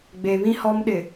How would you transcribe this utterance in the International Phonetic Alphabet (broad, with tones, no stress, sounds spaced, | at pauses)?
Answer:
ɡ͡b e˨ β ĩ˦ h ɔ˦ m ɗ ɪ˨